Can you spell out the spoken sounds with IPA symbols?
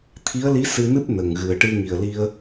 t̪ʰ i˧˥ ə̯ l i˧˥ s ɨ˧ n ɨ˦˥ p̚ n ə˨˩ ŋ ɣ ɨ˨˩ ə̯ ʈ ɨ˧ ŋ i˨˩ ə̯ l i˧ ə̯

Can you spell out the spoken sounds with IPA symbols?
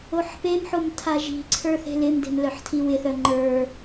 o ħ p e m ħ o m tʰ a ʒ i̤ ǀʰ ə˞ θ e̤ l ɪ m d e̤ m l œ ħ tʰ i w ɪ θ œ ŋ͡ǃ ə˞

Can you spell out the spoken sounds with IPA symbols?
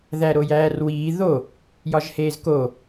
ð æ ɾ o j æː r w iː ð o | j ɒ ʒ h eː z k o

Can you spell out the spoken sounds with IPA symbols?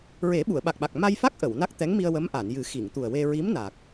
ɹ e˨˩˦ ɓ u˨˩˨ ə̯ ɓ a˨˩ k̚ ɓ a˨˩ k̚ m a˧ j f a˦˥ k̚ ʔ ə˨˩˨ w n a˦˥ k̚ t̪ ɛ˧˥ ŋ m i˧ ə̯ w ə˧˥ m ʔ a˨˩˨ n j ɨ˨˩˦ x i˨˩˨ ŋ t̪ u˨˩ ə̯ w e˧ ɹ i˧˥ m n aː˨˩ k̚

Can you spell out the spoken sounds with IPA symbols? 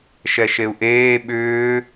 ʃ ɛ ʃ e u̯ ʔ eː ɓ ʏː

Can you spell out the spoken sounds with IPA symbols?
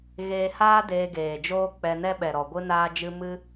ɣ eː˧ h aː˦ d eː˧ ɡ eː˨ d͡ʒ oː˦ k͡p ɛ˧ n ɛ˦ ɓ ɛ˨ ɾ ɔ˨ ɡʷ ɨ˧ n aː˧ d͡ʒ ɨ˧ m ɨ˦

